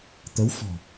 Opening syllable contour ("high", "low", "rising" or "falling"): rising